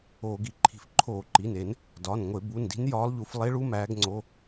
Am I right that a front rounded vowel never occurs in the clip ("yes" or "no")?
yes